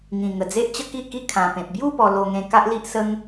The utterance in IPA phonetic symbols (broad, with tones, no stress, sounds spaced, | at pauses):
ŋ ĩ˨˩ ŋ ə˨˩ d͡z e˦ ʔ t͡ɕ ə˦ k i˥˧ k i˧ kʰ ã˨˩ p ẽ˨ p̚ b j u˥˧ p ɔ˧ l o˧ ŋ ẽ˧ k a˦ ʔ l i˦ ʔ s ə˦ ŋ